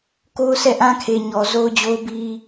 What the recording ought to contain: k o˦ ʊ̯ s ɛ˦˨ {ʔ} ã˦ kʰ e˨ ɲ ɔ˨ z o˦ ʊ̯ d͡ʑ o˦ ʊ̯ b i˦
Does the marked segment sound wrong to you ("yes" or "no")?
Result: no